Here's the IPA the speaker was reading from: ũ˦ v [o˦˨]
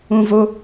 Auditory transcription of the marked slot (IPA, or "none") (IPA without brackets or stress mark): o˦